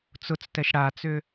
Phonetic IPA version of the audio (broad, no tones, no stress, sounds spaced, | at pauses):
t͡s ʊ t͡s t ɛ ʃ ɽ a t͡s ʏ